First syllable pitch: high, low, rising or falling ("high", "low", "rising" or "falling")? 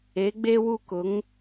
rising